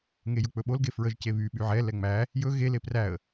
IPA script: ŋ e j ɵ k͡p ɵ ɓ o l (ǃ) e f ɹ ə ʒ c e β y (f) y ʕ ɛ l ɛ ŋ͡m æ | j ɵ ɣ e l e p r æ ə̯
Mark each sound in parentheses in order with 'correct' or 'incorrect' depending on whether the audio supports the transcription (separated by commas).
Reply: incorrect, incorrect